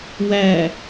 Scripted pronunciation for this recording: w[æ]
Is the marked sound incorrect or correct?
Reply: correct